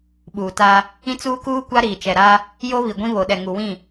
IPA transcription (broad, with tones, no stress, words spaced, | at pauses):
ɓuː˨ta˦ | ĩ˦t͡suː˦kuː˦ kʷa˦ɾiː˨t͡ʃɛ˨ɾaː˦ | jo˦ βi˨ɡʷĩ˦βo˨ɗɛ˨ ŋu˨wĩ˦˨